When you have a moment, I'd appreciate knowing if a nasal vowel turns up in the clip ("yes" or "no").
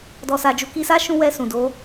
yes